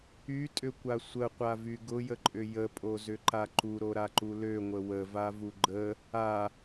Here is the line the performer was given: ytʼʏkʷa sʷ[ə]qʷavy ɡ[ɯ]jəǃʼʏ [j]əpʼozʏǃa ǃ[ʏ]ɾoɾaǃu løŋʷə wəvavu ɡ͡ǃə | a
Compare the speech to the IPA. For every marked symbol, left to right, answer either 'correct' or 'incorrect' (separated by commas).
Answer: correct, incorrect, correct, incorrect